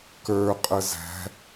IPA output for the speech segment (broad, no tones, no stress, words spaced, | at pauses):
kə˞qʼə zæ̤